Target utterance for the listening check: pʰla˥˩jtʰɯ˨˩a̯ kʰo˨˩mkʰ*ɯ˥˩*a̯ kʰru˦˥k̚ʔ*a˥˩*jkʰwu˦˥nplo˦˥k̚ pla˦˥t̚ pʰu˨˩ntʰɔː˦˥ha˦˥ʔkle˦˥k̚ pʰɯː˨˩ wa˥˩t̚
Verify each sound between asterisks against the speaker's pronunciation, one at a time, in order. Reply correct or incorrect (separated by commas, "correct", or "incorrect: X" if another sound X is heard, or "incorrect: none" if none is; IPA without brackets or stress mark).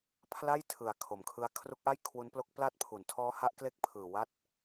incorrect: ɯ˦˥, correct